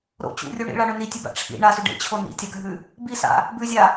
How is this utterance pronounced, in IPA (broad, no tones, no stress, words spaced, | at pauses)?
ɾo̰ t͡ɕṵrʲu ɳḭɭaɳɵ nitʲʉba̰ ʈ͡ʂʰḭ ɳasʉ ɖḛt͡ɕʰo nḭtʲaɡʱʉ | bisa̰ | bʉzʲa